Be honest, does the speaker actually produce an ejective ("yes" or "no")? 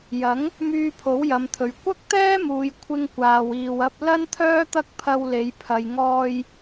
no